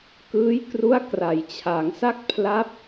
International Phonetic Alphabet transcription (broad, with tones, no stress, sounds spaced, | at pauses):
k ɯː˦˥ j k r u˦˥ a̯ k r a˩˦ j t͡ɕʰ a˩˦ ŋ s a˥˩ k̚ pʰ l a˦˥ p̚